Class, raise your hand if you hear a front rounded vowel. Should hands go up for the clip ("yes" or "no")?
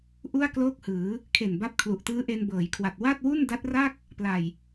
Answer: no